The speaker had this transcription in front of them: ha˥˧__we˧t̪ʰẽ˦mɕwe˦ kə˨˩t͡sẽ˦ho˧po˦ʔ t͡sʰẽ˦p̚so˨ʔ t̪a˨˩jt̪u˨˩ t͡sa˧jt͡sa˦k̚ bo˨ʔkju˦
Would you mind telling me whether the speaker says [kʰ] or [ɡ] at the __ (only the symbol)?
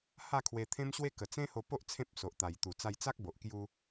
kʰ